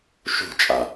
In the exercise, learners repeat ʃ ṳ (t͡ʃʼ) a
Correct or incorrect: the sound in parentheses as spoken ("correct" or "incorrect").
correct